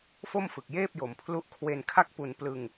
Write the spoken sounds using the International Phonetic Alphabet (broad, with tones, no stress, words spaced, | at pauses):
fo˥˩mfɯ˨˩k̚jeː˥˩p̚jo˨˩m pʰlu˦˥ʔ kʰwe˧nkʰa˥˩k̚pu˧n plɯ˧ŋ